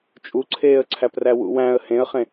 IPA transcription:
t͡ʃʼ u ǀʰ eː ə̯ ǀʰ æ p r æ w ṵ w æ̃ ə̯ h ẽ ə̯ χ ẽ

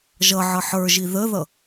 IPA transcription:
ʒ ʌ ʕ ʌ ħ ə˞ ʒ i ð ə ð ʌ

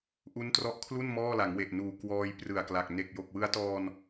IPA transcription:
ʔ u˦˥ n t r ɔ˦˥ ʔ kʰ l u˥˩ n m ɔː˥˩ l a˩˦ ŋ w e˨˩ ʔ n uː˨˩ k w ɔː˧ j p r ɯ˨˩ a̯ k l a˨˩ k̚ n e˨˩ k̚ j o˨˩ k̚ w ɯ˦˥ a̯ t ɔː˧ n

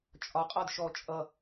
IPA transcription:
t͡ʃʼ ɒ qʼ ɒ d ʃ ɔ t͡ʃʼ ʌ

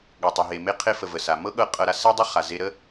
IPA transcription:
ɠ ɤ˩ tˤ ɤ˩ ɦ e˩ m e˧ qʰ e˧ f ə˩ v ə˩ s a˩ m ɤ˥ ɠ ɤ˧ qʼ ɤ˧ ɾ a˧ s ɛ˥ dˤ ə˥ χ a˩ z e˧ ɾ ə˥

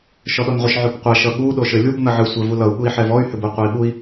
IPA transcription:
ʃ ɔ ɗ ɔ n ʁʷ ə ʃ ʕ o b qʷ a ʃ ʌ ɠ u ɗ o ʃ ɘ lʲ u b n ʌ ʕ ɨ sʷ ɛ v u l ʌ u̯ ɠ u i̯ ħ ɛ v ɔ y̯ h ʏ b u qʷ ʌ i̯ ɓ u i̯

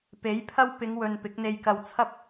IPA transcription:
p e˨˥ j pʰ ɐ˥ w p ɪ˨˧ ŋ w ɵ˨ n p ɪ˨˥ k̚ n̪ e˧ j k ɐ˧ w t͡sʰ ɐ˥ p̚

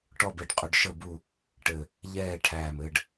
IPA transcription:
ʈ ɔ˥˨ b e˧ ɖ qʼ ʏ˧ ɖ ʃ ə˥˨ b u˥˨ | ʈ ɘ˧˩ | ʎ ɛː˥˨ ʈʰ æː˧˩ m ɘː˧ ɖ

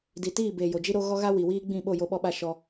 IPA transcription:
d i˨ t iː˦˨ b eː˨ j o˨ d͡ʒ i˦ ɾ o˦ ɣ ɔ˦ ɣ a˦ w i˨ w iː˦ ɡ͡b ĩ˦˨ ɓ o˦˨ j o˦ ɓ ɔ˦ ɓ a˦ ʃ ɔ˦

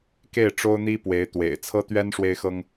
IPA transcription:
k e˥˩ ɪ̯ ʈ͡ʂ o˥ ʊ̯ n̪ i˥ p w e˧˥ ɪ̯ t̪ w ḛ˨˩ ɪ̯ t͡sʰ ɤ˥ t̪ ɥ ɛ˥ n ʂ w e˥ ɪ̯ x ɤ˥ ŋ

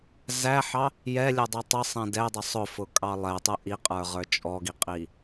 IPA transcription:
z æ ħ ɑ | j ɛ lʲ ə dˤ ɛ tˤ ə sˤ ɛ̃ d ɛ dˤ ə sˤ ʊ f ʊ kʼ ɑ lˠ ɛ tˤ ə ʔ i qʼ ə˞ ʁ ə˞ t͡ʃʼ ɔ ɡ i qʼ i

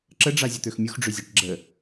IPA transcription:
ǁ ə ɖ͡ʐ a zʲ ə t̪ ø x mʲ u x ɖ͡ʐ ø zʲ a ʈ ɡ͡ǁ ə

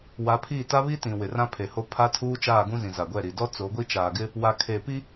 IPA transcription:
w a˨˦ pʰ iː˦˨ t a˦ β i˦ t ĩ˨ w ɪ˨ r ã˦ pʰ e˨ h o˦ pʰ a˦ tʰ uː˦ t͡ʃ aː˦˨ ɡ ũ˦ z ĩ˨ z a˨ ɡʷ ɛ˦˨ ɾ i˨ d ɔ˦ t͡s o˨˦ ɡʷ i˦ t͡ʃ aː˨ ɡ ɪ˦ | w a˨ kʰ e˨ p i˦

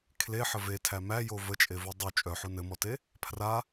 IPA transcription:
kʰ l e ħ ə v e tʰ æ m æ j o v ə t͡ʃʼ e v u dˤ u t͡ʃʼ œ ħ u n ɘ m ɔ t e | pʰ r a

